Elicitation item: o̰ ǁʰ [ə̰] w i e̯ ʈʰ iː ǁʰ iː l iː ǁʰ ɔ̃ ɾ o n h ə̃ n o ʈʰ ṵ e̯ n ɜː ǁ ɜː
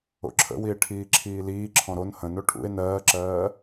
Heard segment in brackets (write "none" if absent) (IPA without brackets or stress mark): ə̰